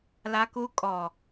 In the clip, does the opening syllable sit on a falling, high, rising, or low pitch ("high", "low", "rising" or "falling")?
high